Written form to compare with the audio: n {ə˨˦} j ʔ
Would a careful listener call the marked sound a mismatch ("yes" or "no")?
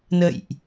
yes